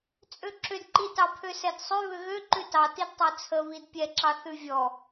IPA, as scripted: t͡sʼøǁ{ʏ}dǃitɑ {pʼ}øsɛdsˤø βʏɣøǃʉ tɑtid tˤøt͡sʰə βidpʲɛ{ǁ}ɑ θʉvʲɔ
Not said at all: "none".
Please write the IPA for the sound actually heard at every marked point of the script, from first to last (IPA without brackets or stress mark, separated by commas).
ʏ, pʰ, ǁ